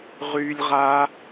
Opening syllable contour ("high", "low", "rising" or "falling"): high